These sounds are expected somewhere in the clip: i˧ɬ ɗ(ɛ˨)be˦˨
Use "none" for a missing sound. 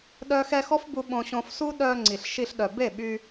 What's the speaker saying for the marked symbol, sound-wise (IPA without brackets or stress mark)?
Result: œ˨